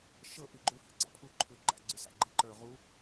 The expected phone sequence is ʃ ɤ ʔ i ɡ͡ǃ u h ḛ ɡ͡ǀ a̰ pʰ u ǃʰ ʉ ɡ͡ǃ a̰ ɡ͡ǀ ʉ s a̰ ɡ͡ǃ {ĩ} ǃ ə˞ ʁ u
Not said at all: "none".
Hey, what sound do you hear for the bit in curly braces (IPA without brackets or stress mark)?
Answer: i